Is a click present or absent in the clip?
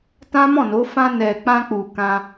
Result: absent